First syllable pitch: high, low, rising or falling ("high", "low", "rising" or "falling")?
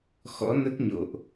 rising